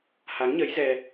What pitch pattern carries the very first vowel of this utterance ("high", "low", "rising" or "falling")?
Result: rising